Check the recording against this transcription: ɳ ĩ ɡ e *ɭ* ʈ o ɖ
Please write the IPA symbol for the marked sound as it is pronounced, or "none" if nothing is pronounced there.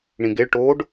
ɭ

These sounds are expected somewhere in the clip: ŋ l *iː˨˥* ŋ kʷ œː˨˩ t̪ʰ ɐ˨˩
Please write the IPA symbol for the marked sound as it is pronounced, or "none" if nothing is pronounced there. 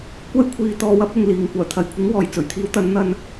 iː˨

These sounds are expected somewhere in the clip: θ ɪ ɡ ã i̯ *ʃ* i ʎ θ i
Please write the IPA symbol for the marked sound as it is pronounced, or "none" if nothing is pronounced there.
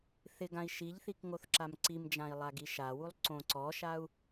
ʃ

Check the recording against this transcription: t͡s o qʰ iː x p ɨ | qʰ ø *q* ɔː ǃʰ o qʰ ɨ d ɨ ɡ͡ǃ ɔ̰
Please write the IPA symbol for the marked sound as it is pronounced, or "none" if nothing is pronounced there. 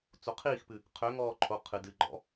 ŋ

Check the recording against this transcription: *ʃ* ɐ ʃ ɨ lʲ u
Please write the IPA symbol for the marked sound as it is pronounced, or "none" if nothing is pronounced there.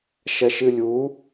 ʃ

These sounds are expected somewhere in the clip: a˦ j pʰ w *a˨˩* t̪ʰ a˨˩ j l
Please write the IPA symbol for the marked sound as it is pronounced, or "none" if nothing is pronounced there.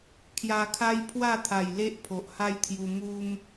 a˥˧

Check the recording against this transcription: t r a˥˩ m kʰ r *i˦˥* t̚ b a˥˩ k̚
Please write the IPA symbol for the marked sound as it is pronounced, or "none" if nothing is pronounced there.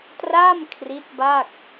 i˦˥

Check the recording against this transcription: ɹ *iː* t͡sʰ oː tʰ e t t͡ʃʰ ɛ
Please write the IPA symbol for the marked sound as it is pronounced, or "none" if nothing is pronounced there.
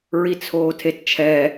i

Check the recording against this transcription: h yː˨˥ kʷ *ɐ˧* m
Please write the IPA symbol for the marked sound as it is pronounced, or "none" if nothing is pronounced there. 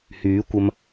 ɐ˧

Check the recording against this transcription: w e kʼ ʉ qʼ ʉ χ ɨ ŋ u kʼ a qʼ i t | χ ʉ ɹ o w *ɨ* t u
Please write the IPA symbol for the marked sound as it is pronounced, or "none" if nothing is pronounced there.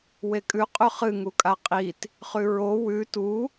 ʉ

